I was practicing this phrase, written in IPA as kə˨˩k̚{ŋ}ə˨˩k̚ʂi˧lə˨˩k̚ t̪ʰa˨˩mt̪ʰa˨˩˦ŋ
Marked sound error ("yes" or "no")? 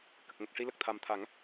no